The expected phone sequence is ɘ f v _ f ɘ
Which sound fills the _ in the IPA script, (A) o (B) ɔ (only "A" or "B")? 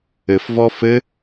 B